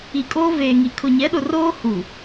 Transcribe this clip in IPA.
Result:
i˨ kʼ oː˦ v eː˨ ŋ i˨ kʰ ʊ˨ ɲ ɛ˨˦ ɗ ʊ˨ r oː˦ h u˨

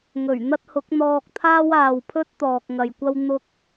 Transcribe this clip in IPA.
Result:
ŋ ɵ˨˩ ɥ n̪ ɐ˥ t̚ h ʊ˨˥ k̚ n̪ ɔː˧ k̚ t̪ʰ aː˥ w aː˨ w pʰ ɵ˥ t̚ t̪ ɔː˨ k̚ ŋ ɐ˨ j kʷ ɐ˥ w n̪ ʊ˥ k̚

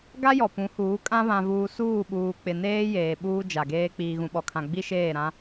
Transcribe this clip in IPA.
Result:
ɡ a˦ j ɔ˨ p ũ˨˦ h uː˨˦ kʼ ã˦ β ã˨ v uː˨ s uː˦˨ ɓ uː˨ k͡p ɪ˨ n eː˦ j eː˨ ɓ uː˦ d͡ʒ a˨ ɡ eː˦ k͡p iː˨ ɣ ũ˨ ɓ ɔ˨ kʰ ã˨ ɡ͡b i˦ ʃ eː˦˨ ɾ ã˦

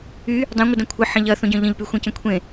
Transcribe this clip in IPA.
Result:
y | dˤ ẽ ŋʷ ə d ɐ̃ kʷʰ ə ħ ɐ̃ ʎ ɐ θ õ ɟ œ̃ ʎ ə̃ ʎ p y xʷ ẽ c ə̃ kʷʰ ẽ

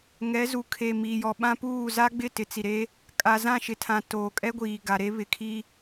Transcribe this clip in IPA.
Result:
ŋ ɛ˨˦ z u˨ kʰ e˨ m iː˨ j ɔ˨ ɓ ã˦ p uː˦˨ z a˦ ɡ͡b ɪ˦˨ t ɪ˨ t͡s i˨ ɾ e˦ | kʼ a˨ z ã˦˨ ʃ ɪ˨ tʰ ã˨ t oː˨ kʼ ɛ˦ ɡʷ iː˨ ɡ a˨ ɾ e˦ β ɪ˨ kʰ i˦

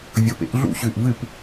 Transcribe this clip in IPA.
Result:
vʲ o˧˩ p ḛ˩˥ ʔ ɮ ṵ˥˩ ɕ ʉ˧˩ ʔ v ɨ˥˩ p

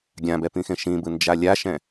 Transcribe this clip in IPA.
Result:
ɡʲ ã b ɛ p ĩ x ẽ ʃ ĩ b ɯ n d͡ʒ a lʲ a ʃ ɛ̃

